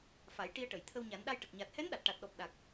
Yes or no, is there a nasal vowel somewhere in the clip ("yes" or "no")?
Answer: no